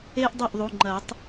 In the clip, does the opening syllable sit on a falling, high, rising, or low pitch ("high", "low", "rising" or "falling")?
high